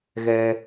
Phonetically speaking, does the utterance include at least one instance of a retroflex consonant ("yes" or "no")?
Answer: no